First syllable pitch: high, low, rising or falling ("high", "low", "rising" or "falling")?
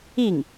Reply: falling